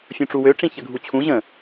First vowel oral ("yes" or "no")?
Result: no